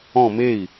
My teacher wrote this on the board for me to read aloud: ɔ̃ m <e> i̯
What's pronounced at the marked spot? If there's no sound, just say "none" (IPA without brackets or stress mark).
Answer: e